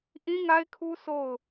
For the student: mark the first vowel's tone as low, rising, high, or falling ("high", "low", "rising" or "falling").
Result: high